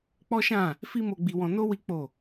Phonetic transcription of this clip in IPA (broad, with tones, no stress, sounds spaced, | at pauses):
k͡p ɔ˦ ʃ ã˦˨ | f i˦ m o˧ ɡ͡b i˧ w ɔ̃˧ n o˦ w i˦ k͡p o˦˨